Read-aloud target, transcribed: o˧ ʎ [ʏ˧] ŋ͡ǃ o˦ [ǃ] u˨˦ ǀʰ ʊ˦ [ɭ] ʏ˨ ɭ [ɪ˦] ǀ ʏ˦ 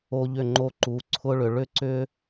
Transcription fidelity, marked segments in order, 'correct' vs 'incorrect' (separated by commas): incorrect, correct, correct, incorrect